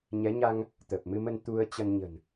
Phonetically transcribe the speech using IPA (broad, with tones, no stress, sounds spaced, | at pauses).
ɲ ɛ˨˦ ɲ a˧ ŋ | t̪ ə˨˩ p̚ m ɨ˧ m ə˧ n t̪ u˧ ə̯ t͡ɕ ə˧ n ɲ ə̤˨˩ n